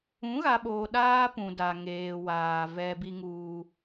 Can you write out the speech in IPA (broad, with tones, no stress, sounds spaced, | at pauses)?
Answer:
ũ˨˦ ɣ a˨ ɓ oː˨ ɗ aː˦ p ũ˨ d a˨ ŋ eː˨ w aː˨ v ɛ˦ b i˦ ŋ uː˦